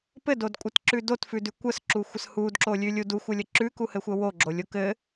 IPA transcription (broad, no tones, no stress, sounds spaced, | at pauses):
p ɘ d o d kʷʼ ɘ t ǁ ʉ d o t f ʉ d ʉ kʷ ə s ǁ u xʷ ə s h u d ǁ o lʲ ʉ lʲ u d u xʷ ə lʲ ə ǁ ʉ k u h ɘ xʷ ə w o ɡ͡ǁ o lʲ o k ɘ